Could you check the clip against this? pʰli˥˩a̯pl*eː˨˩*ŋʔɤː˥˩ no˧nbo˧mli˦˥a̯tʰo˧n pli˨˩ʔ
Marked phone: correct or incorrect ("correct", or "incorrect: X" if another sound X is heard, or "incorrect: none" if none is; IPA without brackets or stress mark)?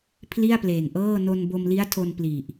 correct